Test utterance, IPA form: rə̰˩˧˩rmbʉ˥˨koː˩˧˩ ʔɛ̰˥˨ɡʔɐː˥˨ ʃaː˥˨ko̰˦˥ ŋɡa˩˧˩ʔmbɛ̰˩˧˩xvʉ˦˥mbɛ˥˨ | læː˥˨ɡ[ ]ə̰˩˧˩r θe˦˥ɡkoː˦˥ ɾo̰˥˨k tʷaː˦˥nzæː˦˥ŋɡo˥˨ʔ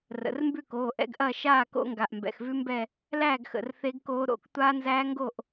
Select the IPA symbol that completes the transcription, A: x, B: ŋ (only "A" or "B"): A